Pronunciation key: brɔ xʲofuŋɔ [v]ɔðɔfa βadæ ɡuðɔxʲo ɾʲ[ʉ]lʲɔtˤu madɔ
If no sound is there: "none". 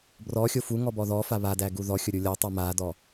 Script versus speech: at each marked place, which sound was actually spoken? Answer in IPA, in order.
b, u

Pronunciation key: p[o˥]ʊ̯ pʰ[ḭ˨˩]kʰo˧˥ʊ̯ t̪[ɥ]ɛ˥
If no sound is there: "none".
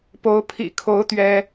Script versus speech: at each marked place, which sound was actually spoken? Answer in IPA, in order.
o˧˥, ḭ˨˩, ɥ

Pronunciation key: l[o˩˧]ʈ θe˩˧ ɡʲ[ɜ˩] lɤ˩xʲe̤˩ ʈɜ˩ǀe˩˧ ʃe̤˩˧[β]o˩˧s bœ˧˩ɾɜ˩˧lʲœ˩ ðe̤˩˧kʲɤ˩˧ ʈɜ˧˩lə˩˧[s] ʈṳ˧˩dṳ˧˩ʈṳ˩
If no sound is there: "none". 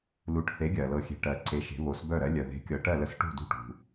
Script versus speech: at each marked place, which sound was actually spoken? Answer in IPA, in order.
u˩˧, ɜ˩, β, s

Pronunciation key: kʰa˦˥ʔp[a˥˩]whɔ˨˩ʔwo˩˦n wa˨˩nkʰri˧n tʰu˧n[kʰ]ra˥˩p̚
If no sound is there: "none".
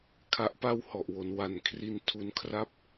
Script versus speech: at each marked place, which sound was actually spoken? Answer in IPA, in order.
a˥˩, kʰ

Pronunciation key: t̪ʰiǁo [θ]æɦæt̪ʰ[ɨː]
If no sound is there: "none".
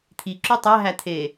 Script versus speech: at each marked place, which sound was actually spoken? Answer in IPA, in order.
tˤ, eː

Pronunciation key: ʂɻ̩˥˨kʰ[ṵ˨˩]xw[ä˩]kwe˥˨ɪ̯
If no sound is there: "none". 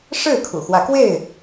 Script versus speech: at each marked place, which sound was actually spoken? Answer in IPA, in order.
ṵ˨˩, ä˨˦

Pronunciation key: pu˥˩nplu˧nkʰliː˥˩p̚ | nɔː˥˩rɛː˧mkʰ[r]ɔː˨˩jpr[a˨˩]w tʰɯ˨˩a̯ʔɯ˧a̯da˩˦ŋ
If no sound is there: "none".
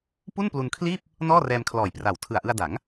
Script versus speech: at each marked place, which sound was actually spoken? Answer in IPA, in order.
l, a˨˩

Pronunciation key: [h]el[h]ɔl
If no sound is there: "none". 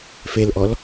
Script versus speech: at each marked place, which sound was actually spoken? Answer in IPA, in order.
f, ʔ

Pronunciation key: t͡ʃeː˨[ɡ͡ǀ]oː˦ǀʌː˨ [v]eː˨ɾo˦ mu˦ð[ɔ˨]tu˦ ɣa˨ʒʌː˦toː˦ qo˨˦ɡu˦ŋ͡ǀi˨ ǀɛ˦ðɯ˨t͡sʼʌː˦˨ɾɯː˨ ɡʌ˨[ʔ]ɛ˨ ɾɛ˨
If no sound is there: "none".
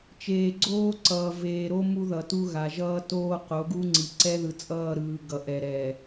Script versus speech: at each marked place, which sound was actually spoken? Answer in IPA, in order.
ɡ͡ǀ, v, ʌ˨, ʔ

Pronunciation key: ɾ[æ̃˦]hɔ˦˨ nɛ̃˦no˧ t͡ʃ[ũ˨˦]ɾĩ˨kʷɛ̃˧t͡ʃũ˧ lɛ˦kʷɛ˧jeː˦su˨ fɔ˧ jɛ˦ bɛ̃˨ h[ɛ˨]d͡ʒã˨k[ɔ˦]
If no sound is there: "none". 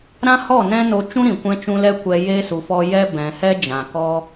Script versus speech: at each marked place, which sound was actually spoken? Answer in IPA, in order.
ã˦, ũ˦, ɛ˦, ɔ˦

